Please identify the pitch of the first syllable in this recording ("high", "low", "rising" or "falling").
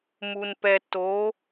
low